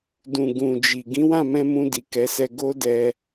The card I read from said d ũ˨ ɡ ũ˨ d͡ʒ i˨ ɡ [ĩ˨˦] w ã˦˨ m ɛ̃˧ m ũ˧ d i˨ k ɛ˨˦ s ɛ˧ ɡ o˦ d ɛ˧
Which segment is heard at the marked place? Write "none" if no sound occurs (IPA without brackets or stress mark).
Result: ĩ˨˦